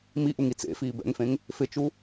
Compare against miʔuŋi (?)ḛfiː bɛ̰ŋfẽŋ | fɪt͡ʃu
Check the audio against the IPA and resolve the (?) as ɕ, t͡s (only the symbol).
t͡s